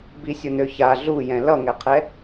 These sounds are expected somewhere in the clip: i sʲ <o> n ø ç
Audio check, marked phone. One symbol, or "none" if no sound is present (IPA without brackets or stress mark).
o